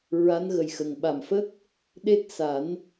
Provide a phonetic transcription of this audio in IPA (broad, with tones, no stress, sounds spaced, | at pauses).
ɹ a˧˥ n ɣ ə˨˩ j x ə˨˩ ŋ ɓ a˨˩ m f ə˦˥ k̚ | ɗ e˦˥ t̚ s a˨˩˦ n